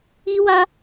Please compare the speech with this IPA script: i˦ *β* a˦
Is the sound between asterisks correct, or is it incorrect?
incorrect